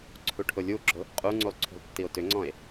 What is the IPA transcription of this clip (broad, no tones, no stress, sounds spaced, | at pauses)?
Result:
ǀʰ u ʈʰ ʊ lʲ u ɡ͡ǁ ʊ | qʼ u ŋ͡ǀ u lˠ ǀʰ ṳ lˠ tː i o̯ t ʏ ŋ͡ǀ ɔ̃ e̯